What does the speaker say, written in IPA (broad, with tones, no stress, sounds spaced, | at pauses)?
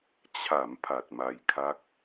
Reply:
t͡ɕʰ a˩˦ m pʰ a˨˩ t̚ m a˧ j kʰ a˦˥ k̚